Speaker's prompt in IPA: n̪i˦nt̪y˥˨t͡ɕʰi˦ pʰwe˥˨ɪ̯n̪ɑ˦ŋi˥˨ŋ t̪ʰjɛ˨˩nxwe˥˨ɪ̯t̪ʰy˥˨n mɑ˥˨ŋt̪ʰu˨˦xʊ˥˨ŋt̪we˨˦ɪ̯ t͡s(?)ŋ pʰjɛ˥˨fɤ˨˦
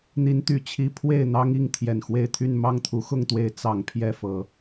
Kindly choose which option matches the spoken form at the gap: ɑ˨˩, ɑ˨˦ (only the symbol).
ɑ˨˩